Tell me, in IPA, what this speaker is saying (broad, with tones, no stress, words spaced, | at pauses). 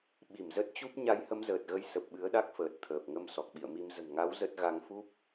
ɓi˧˩mzə˦˥t̚t͡ɕu˦˥p̚ ɲa˨˦jhə˨˦mzəː˨˩t̚ɣə˨˦j sə˨˩p̚ɓɨ˨˦ə̯ɗa˦˥k̚fəː˨˩t̚ t̪ʰəː˨˩p̚ŋə˧m sɔ˨˩k̚ɓḭ˧˨ə̯mi˧m zə̤˨˩nŋa˨˦w zə˦˥t̚ ɣa˨˦ŋfu˦˥p̚